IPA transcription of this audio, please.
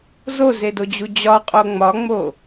z o z e d o d͡ʑ u d͡ʑ ɒ qʼ o ŋ͡m ɒ ŋ͡m o

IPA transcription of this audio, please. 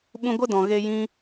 ɓ ũ˦ ɡʷ ə˦ d ɔ̃˨ ɣ e˧ j ĩ˦

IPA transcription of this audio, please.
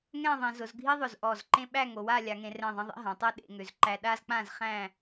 ŋ ɛ̃˥˧ ðˤ ẽ˩˧ z ʊ˩˧ z ɡʱ i˥ ðˤ ʊ˧˩ z ʔ ɔ˧˩ z ǃ ẽ˥ ɓ æ˥˧ ŋ o˩˧ w a˥˧ lʲ a˩˧ ŋ ẽ˩˧ r ɛ̃˧˩ ðˤ ẽ˧ ðˤ ḛ˥ ɦ ã˩˧ tˤ ɛ˥ ɗ ḛ˩˧ ŋ ʏ˩˧ z ǃ æ˧ ɗ a˥ z k͡p ã˥˧ z χ æ̃˥˧

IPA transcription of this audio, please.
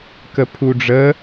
k ə pʰ u ɖ͡ʐ ə

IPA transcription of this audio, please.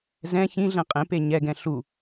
z ɛ̃ ç ĩ ɮ ɛ̃ qʼ ẽ p e ɲ ɛ ɡ ɛ̃ ɬ u

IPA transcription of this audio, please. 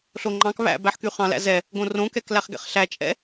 ɬ o ŋ͡ǃ ɑ̃ k β æ̰ b æ ħ k y χ ɑ̃ l æ̰ z ɛ | ɡ õ r õ k ɛ k l æ χ ɡ ɛ̰ χ ɬ æ t͡ʃʼ ɛ̰

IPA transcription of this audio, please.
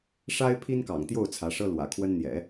ʂ a˥ ɪ̯ pʰ i˥ n k ɑ̰˨˩ ŋ t̪ j o˥˩ ʊ̯ t͡sʰ ä˧˥ ʂ ɤ˥ l w ä̰˨˩ kʰ w ə˥ n n̪ j ɛ̰˨˩˦

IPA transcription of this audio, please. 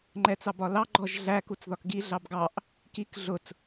ŋ͡ǃ ɛ t͡s ɑ b ɒ l ɑ ɡ͡ǃ ɔ ʒ ɮ æ k u t͡s ð ɒ k ɡ i ɮ ɑ b ɡ ɑ ʔ | k i k ɮ ʊ t͡s

